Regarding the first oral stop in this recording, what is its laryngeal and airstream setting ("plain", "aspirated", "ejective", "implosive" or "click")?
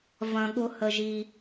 implosive